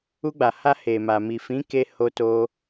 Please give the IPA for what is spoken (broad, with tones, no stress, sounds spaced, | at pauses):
u˧ ɡ͡b a˨ h a˧ h e˨ m a˨ m i˨ f ĩ˨˦ k e˧ h o˧ t o˧